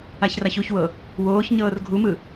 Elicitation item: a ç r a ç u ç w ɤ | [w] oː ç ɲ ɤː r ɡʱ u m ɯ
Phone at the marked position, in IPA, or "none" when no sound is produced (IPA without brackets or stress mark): w